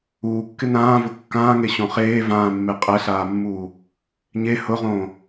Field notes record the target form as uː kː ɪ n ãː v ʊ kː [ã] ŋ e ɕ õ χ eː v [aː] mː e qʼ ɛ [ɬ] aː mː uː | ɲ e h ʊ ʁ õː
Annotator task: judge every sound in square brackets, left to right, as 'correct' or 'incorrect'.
incorrect: ãː, incorrect: ãː, correct

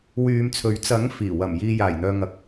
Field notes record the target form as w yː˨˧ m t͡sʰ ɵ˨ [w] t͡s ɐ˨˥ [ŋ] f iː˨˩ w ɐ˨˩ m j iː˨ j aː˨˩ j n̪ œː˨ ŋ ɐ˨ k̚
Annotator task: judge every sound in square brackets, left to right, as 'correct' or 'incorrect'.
incorrect: ɥ, correct

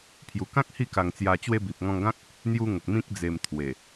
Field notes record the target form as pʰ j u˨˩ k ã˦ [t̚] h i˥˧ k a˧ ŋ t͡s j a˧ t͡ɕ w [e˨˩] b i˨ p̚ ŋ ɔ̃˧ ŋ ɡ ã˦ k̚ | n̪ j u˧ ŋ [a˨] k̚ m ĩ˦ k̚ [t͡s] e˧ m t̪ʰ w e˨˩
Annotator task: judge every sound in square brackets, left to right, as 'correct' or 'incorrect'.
incorrect: k̚, incorrect: e˧, incorrect: ə˨, incorrect: d͡z

